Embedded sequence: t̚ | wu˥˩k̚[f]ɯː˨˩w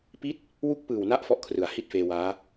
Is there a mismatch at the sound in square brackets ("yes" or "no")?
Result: yes